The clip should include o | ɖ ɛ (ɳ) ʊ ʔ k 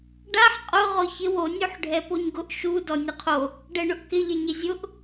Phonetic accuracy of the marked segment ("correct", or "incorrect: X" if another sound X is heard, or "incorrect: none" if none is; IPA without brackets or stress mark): correct